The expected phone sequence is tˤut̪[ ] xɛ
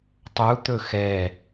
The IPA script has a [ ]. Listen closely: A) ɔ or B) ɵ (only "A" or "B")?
B